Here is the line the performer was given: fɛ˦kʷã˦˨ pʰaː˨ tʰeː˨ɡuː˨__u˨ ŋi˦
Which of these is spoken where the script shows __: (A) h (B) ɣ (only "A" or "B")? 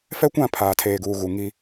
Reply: B